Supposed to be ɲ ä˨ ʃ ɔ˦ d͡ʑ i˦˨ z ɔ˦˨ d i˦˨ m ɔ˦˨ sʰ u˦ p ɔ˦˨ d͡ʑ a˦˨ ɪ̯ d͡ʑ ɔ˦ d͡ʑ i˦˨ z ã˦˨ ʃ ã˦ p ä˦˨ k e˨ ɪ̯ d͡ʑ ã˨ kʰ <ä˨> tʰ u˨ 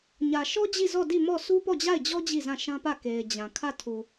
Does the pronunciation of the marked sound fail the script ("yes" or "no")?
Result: yes